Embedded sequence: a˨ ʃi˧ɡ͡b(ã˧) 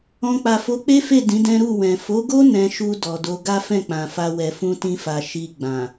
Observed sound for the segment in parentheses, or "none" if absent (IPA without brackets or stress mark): ã˨